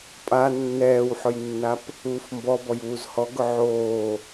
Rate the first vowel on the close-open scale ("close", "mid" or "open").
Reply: open